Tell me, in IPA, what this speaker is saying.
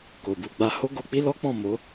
ko˨bu˨ɡ͡ba˧ ho˦ɡo˧k͡pi˦ lɔ˦k͡pɔ̃˦˨ mo˨˦

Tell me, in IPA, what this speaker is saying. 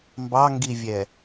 mbɑŋɡivʲɛ

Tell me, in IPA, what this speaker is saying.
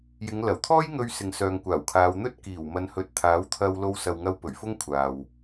jɪ˨˧ŋlɐ˨˩wt̪ʰɔː˥jŋɵ˧ɥ sɪ˨ŋsœː˨ŋkʷaː˨˩wkʰaː˨˧w n̪ɵ˥t̚ kiː˨˩wmɐ˨˧n hɵ˨t̚ t̪ʰaː˨˥wt̪ʰɐ˧wlo˧w sɐ˨wŋɐ˧w pɵ˨˩ɥfʊ˥ŋkʷʰaː˨w

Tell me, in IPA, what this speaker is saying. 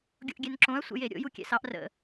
ɡʲuʔɡʲɛnǁõɐ̯ sʷə̰jeɾʲo̰j ukʲɛ̰sɑʔ rə̰

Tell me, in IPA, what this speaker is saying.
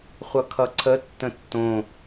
χʷʌkʰʌǀʰə tːə̃tːõ

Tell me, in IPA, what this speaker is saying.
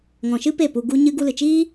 ŋɔ̃˨ʃɨ˦ pe˦˨ pu˧ ɡu˦ɲɨ˦ ɡu˧lɨ˨t͡ʃiː˦

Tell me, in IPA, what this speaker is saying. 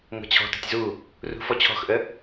ŋʷa̤t͡ɕʰɔ̤tə̤tʲ zu | rṳfɔt͡ɕʰɔ̤xʔə

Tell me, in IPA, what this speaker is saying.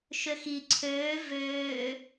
ʃøxi ǀʰøː vøː

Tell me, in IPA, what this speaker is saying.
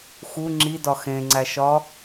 xu ŋ͡ǁidɒ xẽŋ͡ǀæʃɒ

